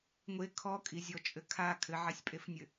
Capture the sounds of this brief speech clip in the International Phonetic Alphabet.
ŋʷ e kʰ ɔ kʼ i zʲ ɔ t͡ʃʼ ɘ kʰ a kʰ ɘ ʕ a sʲ pʼ e f nʲ ɘ

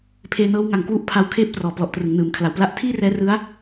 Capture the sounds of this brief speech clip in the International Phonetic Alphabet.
pʰ eː˧ n ɤː˦˥ w ŋ a˨˩ ŋ k w u˥˩ ʔ pʰ a˦˥ w kʰ eː˥˩ p̚ t r ɔː˨˩ p l ɔ˨˩ ʔ t r ɯ˩˦ ŋ n ɯː˩˦ m kʰ l a˨˩ w p l a˦˥ ʔ tʰ iː˥˩ r ɛː˦˥ r ɯ˦˥ a̯

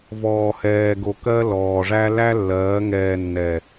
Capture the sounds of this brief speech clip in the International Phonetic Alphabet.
v ɔː˨ h ɛː˨ ɡ o˨ k ɜ˦ l ɔː˨ ʐ æ˦ l æ˦ lː ɜː˨˦ ŋ ɛː˨ nː ɛ˨

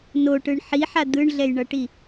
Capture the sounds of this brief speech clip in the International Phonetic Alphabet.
n o ʈ ɯ ɳ ħ i ħ a d̪ ɯ ɳ ɮ ɛ j ɳ ʌ ʈ i

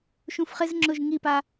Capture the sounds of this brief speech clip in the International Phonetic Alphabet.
ʃ ũ f χ ɪ z ŋ͡ǁ ʊ ʒ ŋ i p a

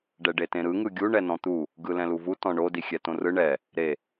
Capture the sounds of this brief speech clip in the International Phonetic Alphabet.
ɖ ɛ ɖ e t ẽ ɾ ɯ ŋ ɯ ɡʲ u ɳ ɛ n ɔ̃ t̪ u | ɡ ɯ l ɛ̃ l u v u t ɔ̃ ɳ o d i xʲ ɛ t õ r ɯ ɳ ɛ | ɾ e

